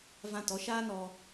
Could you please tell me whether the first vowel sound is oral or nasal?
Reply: nasal